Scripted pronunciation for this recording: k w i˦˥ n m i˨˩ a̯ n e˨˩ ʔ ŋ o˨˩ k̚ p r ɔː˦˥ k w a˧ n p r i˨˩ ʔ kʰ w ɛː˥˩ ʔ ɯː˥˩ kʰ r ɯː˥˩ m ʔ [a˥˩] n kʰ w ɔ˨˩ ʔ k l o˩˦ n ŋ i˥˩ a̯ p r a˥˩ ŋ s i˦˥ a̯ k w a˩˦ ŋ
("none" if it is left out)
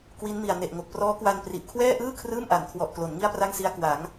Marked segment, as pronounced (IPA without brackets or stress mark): a˩˦